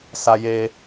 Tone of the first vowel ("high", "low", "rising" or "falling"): high